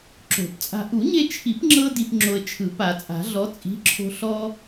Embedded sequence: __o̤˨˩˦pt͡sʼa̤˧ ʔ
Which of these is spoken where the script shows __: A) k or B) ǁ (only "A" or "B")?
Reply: B